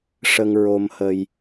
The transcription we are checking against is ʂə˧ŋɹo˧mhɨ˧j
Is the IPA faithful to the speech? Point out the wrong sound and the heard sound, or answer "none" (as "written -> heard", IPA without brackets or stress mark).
ɨ˧ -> ə˧